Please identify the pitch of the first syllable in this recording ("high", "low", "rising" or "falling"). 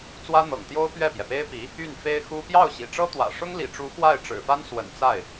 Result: high